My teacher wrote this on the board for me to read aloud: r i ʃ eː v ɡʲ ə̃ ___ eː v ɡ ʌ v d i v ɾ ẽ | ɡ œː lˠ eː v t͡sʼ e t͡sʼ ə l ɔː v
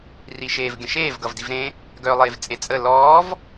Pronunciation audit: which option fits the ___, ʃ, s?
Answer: ʃ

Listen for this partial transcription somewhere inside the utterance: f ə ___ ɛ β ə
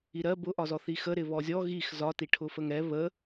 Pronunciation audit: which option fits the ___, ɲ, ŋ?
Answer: ŋ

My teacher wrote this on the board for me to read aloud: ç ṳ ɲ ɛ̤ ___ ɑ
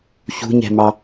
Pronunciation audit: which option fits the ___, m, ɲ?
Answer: m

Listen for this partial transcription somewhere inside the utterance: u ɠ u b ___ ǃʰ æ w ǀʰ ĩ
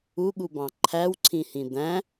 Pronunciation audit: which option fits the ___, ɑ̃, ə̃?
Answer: ɑ̃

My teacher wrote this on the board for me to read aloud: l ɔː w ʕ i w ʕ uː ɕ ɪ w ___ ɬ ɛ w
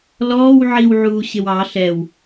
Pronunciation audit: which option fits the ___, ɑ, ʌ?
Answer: ɑ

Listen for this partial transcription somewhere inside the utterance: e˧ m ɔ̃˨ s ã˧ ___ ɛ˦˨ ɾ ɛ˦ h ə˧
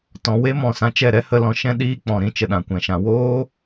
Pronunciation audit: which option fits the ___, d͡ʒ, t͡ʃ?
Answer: t͡ʃ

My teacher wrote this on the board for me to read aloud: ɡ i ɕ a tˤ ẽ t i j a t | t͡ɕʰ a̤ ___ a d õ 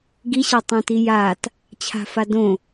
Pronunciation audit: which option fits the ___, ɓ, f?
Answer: f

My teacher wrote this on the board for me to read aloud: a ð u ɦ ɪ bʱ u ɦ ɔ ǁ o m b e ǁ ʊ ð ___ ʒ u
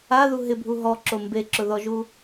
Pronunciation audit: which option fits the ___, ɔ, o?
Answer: ɔ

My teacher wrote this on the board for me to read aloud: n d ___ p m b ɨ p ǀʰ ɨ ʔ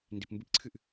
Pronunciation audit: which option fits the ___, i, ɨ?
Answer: i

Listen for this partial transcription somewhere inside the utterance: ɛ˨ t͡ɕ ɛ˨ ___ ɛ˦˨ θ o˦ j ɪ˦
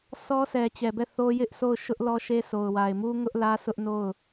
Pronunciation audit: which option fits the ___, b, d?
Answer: b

